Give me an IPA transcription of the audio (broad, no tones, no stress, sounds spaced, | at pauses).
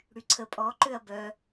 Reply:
ɽ y ǀʰ ə pʼ ɔ ǃ ø ɐ̯ b œ